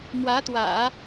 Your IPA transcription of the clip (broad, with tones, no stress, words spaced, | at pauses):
mwä˧˥t̪wä̰˨˩˦